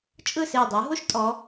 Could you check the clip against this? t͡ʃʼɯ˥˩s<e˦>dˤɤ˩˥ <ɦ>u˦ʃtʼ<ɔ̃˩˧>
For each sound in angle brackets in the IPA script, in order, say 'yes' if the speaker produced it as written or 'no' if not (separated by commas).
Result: no, yes, no